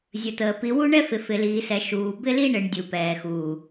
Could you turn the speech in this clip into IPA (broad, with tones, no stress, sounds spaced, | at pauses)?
zʲ ə˨ t̪ əː˨ p i˨ w u˦ ɳ ɛ˦ f ɪ˨ f ɪ˨ l iː˨ s ɛ˨ ʃ uː˨ b ɪ˦ l i˦ ɳ ɪ˨ ɳ dʲ u˨ p ɛː˨ x uː˨